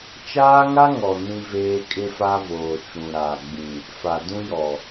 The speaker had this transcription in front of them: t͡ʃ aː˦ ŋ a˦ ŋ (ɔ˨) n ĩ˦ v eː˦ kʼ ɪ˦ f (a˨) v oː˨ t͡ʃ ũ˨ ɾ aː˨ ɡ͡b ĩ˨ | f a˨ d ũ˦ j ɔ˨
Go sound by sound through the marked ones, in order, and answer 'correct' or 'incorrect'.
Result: correct, incorrect

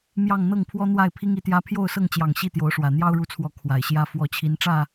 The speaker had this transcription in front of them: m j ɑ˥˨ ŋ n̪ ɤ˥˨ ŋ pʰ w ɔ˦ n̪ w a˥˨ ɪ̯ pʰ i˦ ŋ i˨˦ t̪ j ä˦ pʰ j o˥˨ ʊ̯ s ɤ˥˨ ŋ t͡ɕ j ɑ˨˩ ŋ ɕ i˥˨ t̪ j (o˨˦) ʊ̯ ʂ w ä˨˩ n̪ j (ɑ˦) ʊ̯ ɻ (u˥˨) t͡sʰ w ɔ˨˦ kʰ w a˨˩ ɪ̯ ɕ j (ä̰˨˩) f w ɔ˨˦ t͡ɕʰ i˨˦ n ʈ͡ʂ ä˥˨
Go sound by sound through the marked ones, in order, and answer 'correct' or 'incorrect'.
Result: correct, correct, incorrect, incorrect

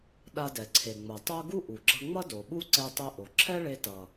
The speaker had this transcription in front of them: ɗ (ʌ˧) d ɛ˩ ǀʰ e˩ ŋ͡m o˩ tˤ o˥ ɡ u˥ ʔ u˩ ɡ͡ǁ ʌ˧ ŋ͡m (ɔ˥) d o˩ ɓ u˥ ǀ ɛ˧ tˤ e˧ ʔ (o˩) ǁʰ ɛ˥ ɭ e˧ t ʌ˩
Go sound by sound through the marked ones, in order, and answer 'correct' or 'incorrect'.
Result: incorrect, incorrect, correct

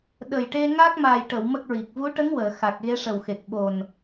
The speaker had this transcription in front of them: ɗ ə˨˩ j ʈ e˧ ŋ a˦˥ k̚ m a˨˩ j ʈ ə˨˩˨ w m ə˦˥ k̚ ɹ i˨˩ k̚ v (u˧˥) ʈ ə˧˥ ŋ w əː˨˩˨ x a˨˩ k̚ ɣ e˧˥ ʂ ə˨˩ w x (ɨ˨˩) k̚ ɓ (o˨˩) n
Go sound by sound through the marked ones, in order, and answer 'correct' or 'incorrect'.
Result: correct, incorrect, correct

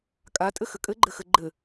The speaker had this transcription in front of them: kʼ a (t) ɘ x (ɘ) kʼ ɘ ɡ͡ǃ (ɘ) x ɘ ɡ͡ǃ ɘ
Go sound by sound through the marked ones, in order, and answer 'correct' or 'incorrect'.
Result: incorrect, correct, correct

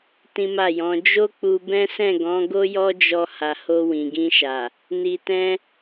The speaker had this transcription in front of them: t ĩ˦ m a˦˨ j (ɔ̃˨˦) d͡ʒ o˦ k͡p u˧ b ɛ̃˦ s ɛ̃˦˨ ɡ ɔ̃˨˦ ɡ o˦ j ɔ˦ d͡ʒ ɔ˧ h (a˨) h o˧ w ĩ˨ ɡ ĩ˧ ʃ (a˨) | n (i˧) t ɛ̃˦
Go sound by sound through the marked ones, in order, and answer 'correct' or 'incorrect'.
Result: correct, correct, correct, correct

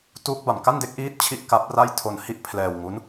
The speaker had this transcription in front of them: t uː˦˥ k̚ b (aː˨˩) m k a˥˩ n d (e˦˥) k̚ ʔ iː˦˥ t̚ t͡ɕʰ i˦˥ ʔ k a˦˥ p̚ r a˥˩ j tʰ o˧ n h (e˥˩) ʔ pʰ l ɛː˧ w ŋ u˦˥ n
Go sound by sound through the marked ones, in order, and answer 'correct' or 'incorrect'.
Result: incorrect, correct, incorrect

